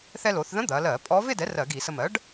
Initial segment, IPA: θ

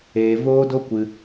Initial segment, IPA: eː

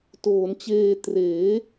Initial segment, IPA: t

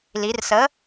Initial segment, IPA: l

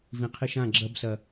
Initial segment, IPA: v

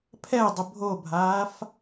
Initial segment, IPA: pʰ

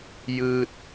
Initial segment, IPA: j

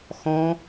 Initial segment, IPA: x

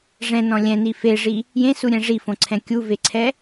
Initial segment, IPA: ʐ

